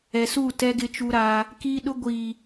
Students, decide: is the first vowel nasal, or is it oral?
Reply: oral